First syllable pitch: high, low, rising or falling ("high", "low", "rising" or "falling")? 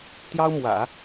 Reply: high